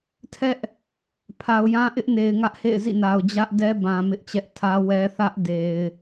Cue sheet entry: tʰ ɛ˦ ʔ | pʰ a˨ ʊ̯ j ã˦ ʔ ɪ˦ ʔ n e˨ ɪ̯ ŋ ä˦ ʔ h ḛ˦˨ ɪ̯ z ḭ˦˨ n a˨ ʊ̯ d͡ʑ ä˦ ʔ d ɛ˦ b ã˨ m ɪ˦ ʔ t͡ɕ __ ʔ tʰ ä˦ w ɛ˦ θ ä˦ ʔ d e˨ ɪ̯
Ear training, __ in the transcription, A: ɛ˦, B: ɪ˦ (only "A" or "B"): A